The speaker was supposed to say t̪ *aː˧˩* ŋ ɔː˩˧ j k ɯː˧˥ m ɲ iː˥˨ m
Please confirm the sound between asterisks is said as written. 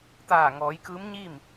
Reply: yes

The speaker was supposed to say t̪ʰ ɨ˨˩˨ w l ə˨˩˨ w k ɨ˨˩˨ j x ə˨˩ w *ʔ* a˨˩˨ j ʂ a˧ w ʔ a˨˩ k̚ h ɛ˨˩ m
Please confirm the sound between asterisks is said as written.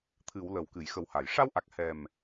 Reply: no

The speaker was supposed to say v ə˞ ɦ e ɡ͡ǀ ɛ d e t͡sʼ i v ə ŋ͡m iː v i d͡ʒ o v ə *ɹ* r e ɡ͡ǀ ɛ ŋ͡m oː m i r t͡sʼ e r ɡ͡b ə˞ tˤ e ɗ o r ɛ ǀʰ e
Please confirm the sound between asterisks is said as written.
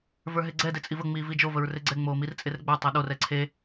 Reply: yes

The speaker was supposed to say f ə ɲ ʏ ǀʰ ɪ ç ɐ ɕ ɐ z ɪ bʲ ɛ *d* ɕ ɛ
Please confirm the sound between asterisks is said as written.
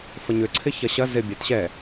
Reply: no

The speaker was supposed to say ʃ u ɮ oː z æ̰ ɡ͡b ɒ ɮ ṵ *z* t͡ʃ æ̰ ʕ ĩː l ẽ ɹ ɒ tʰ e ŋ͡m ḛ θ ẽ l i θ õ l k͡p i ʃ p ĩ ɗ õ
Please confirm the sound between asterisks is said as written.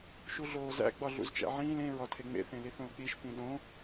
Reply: yes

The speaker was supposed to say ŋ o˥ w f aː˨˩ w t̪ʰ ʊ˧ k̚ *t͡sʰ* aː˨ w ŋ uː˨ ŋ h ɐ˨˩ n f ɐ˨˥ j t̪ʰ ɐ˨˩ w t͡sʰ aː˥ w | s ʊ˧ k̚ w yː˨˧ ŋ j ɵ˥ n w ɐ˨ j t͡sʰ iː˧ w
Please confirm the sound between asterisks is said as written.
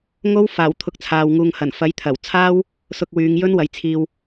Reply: yes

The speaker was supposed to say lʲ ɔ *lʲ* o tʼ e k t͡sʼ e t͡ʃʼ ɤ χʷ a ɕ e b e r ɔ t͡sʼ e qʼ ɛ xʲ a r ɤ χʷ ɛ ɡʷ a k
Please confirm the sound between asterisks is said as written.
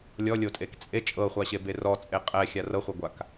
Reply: yes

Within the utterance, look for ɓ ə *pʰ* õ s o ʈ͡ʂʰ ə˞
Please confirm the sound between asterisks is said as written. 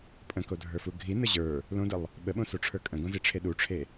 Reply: no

